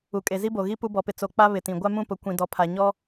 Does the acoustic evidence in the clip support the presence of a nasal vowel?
yes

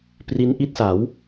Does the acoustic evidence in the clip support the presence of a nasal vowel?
no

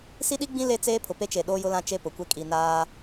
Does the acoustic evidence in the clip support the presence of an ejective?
yes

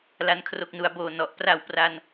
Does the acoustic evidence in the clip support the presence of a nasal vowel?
no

